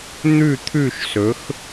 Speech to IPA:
n̪ʉ˥˨t̪ʰʉ˥˨ʃsɵ˩˥x

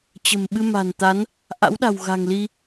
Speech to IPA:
t͡ɕə̤˨˩mɓɨ˧ ma̤˨˩nt̪a˨˦n | ʔa̰˧˥wɗa̤˨˩w ɣa̤˨˩ŋli˧

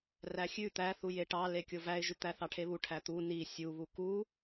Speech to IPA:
ræxʲʉ t̪æθuje ʈɑ lekʲovæɪ̯ʒʉ t̪æθɑʈʰeβu ʈʰæt̪u ni sʲuβu ku

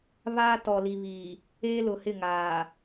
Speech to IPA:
βaː˦tɔ˨li˨βiː˨ | eː˦lʊ˨hɪ˦˨ ŋaː˨

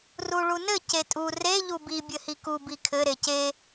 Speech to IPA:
ruɭunɘ cetʼu re ʎubi bʲɘhiku bikʰɘ ɾece

